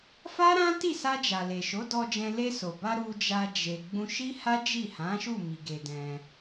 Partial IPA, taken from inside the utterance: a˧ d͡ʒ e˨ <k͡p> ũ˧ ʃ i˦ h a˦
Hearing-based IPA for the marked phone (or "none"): ɡ͡b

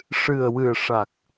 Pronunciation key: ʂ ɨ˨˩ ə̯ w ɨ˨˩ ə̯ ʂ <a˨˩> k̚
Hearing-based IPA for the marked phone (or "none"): a˨˩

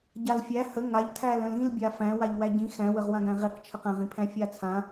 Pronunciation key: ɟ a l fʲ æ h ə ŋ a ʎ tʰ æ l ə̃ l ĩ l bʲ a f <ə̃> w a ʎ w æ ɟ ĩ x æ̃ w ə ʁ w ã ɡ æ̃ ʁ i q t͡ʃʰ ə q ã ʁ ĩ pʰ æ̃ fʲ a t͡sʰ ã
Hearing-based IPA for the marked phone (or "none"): æ̃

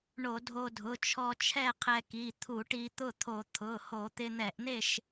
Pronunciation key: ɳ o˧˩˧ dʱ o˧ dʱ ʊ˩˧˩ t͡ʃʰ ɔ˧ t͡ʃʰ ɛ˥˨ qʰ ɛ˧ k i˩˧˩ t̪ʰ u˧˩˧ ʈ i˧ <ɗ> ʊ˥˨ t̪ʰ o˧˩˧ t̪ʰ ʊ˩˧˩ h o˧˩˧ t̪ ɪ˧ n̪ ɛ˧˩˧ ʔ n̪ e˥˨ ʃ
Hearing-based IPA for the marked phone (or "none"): t̪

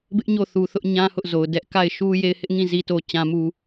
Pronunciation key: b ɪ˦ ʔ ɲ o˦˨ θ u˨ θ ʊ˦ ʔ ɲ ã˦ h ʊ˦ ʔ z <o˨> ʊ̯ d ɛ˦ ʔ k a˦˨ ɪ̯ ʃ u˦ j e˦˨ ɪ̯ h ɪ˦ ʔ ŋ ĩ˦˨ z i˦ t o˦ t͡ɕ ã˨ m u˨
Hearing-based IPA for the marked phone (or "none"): o˨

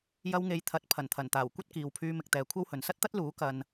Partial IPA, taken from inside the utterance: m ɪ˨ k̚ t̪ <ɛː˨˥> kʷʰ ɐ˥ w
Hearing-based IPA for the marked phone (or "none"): ɛː˨˧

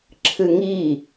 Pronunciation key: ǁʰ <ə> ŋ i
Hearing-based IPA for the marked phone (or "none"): ɨ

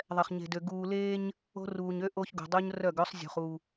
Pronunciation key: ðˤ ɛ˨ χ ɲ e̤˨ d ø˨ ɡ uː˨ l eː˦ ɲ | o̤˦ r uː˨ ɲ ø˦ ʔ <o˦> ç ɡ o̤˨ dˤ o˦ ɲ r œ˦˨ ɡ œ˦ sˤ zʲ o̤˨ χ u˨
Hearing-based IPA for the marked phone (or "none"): o˦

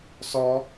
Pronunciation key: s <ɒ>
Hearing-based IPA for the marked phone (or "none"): ɒ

